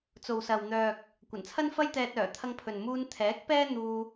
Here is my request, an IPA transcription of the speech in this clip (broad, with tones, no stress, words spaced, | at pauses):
t͡so˨wsɐ˨w n̪œː˨k̚ | kʷɐ˨˩nt͡sʰɐ˥nfɐ˥j t̪ɛː˧t̚œː˨˩ t̪ʰɐ˧ŋpʰɵ˨n muː˧nt̪ʰɛː˨˥k̚ pɛː˥n̪uː˧